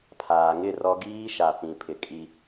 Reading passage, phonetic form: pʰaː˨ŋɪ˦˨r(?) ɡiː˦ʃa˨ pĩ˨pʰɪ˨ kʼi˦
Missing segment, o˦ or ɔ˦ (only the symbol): ɔ˦